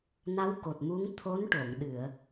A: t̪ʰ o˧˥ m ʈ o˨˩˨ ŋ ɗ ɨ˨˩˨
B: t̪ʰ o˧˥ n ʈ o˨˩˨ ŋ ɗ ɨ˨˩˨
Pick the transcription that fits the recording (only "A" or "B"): B